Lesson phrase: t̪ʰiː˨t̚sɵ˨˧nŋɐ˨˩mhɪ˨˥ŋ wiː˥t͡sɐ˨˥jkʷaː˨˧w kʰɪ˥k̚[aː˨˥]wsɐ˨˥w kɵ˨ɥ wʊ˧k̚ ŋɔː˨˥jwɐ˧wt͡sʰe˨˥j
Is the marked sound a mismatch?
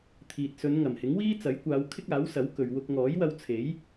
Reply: no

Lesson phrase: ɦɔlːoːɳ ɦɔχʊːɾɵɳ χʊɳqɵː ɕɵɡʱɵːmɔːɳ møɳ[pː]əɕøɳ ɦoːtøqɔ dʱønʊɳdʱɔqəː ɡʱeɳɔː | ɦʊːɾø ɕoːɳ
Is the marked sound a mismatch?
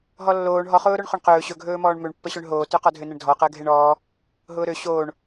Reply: no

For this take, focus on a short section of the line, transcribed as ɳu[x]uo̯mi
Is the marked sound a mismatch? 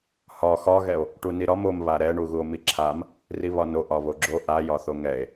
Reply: yes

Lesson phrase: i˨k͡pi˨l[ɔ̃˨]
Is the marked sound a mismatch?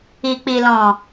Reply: no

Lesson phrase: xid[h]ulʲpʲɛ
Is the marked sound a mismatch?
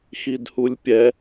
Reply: no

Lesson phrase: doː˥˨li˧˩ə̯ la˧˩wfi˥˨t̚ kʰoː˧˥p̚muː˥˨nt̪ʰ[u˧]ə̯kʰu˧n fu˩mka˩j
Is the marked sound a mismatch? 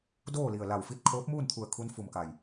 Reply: yes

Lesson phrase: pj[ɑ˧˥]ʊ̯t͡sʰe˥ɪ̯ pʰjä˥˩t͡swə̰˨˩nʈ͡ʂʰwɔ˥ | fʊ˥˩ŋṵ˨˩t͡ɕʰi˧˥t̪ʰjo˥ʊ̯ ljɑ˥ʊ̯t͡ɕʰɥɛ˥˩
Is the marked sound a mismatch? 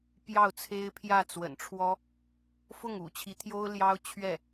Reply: yes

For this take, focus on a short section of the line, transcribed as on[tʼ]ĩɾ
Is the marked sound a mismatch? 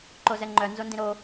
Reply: yes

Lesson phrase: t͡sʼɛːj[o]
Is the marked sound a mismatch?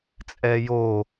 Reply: no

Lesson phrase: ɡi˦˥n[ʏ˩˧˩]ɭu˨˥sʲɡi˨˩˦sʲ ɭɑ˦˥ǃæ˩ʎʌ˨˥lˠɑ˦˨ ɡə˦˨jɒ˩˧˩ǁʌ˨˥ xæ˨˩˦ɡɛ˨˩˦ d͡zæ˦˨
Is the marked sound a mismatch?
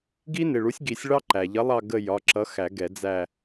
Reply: yes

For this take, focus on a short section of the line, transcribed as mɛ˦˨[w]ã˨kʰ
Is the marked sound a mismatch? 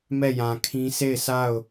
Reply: yes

